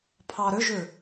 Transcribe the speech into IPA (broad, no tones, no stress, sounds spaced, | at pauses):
pʰ ɑ ɾ ʏ ʒ ʏ